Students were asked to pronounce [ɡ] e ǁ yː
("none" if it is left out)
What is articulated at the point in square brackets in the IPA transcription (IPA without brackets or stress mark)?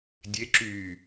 dʲ